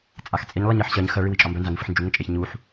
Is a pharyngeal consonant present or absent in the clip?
present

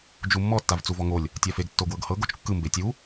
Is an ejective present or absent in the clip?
absent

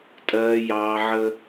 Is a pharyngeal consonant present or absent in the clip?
present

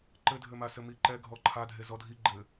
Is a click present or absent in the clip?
present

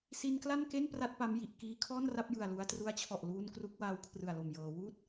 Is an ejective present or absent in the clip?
absent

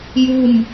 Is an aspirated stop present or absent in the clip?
absent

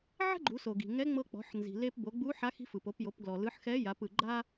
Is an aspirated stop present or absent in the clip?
absent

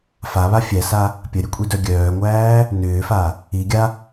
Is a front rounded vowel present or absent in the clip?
present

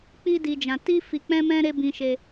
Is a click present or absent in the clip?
absent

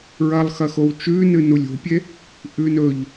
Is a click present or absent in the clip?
absent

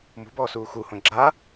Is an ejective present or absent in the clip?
absent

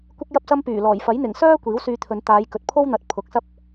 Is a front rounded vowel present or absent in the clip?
present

